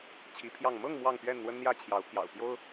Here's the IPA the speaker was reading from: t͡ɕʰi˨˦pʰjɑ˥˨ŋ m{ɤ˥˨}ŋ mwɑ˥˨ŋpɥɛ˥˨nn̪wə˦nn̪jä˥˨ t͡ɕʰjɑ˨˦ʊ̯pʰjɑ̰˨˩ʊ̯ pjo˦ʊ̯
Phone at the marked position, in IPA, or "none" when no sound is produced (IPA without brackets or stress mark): ɤ˥˨